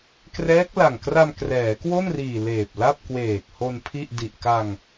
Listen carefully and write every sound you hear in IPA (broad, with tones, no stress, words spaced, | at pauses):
krɛː˦˥k̚la˨˩ŋ kra˧mkrɛː˩˦kwo˥˩nriː˨˩ leː˨˩p̚la˥˩p̚ kweː˨˩k̚ho˧n pʰi˥˩ʔ di˨˩ʔka˧ŋ